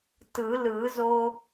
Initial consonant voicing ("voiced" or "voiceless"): voiceless